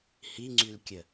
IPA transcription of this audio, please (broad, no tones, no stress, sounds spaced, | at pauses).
h i ŋ͡ǀ y l kʲ ə